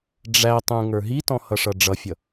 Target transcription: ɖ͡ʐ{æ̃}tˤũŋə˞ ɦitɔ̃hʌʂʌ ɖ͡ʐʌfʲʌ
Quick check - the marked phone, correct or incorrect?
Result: incorrect: æ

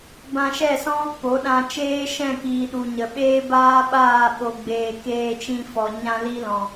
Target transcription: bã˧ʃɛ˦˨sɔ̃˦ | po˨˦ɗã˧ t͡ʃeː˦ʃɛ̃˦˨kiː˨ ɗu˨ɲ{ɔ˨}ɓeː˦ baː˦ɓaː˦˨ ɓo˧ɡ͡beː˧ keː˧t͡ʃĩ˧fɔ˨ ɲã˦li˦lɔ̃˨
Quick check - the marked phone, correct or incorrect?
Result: incorrect: ə˨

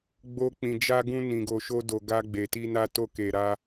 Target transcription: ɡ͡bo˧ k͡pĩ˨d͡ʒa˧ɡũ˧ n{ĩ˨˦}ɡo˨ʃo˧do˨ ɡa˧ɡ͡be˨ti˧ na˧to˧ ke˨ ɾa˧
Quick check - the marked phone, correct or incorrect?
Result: incorrect: ĩ˨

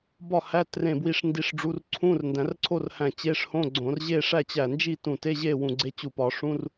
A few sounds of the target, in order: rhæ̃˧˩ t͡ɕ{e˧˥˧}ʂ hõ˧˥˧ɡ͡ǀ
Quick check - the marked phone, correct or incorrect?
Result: correct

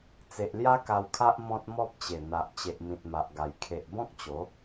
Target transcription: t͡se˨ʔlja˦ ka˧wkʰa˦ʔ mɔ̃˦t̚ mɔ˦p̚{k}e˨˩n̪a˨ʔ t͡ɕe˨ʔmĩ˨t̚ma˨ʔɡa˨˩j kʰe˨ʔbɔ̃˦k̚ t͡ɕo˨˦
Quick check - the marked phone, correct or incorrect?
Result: incorrect: t͡ɕ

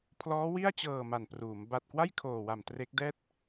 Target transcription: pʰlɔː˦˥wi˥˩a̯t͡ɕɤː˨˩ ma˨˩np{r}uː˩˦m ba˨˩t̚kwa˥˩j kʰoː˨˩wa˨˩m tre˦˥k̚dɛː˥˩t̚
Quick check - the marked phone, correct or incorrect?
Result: correct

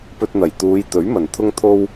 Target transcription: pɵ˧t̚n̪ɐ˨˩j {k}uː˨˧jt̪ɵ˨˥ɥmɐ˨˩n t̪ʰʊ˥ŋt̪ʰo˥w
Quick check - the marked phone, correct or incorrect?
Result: incorrect: t̪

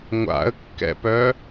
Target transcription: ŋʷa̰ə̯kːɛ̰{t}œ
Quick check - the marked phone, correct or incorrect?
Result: incorrect: p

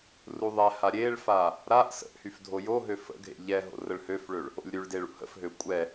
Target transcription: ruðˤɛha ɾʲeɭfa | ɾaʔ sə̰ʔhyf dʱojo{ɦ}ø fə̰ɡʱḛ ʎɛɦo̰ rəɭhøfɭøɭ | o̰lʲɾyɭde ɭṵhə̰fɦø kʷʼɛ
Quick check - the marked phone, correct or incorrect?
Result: correct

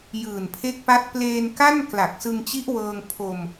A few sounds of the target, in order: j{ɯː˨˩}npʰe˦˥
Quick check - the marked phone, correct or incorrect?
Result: correct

